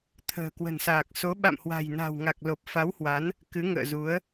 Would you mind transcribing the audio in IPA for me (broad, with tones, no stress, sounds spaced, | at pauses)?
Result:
t̪ʰ ə̤ː˨˩ k w ə̤˨˩ n s aː˨˩ k̚ s o˨˦ ɓ a̰˧˨ m h w a̤˨˩ j n a̤˨˩ w ŋ a˨˩ k̚ l o˨˩ p̚ f a˨˦ w h w a˨˦ n | k ɨ˨˦ ŋ ə̰ː˧˨ z u˨˦ ə̯